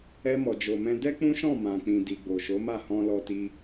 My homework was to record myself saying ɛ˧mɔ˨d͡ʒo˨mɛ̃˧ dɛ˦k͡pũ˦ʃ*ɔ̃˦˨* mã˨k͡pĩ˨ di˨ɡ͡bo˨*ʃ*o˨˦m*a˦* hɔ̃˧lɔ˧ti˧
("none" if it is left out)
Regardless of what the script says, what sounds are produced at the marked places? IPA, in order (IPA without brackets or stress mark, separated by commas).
ɔ̃˦˨, ʃ, a˦˨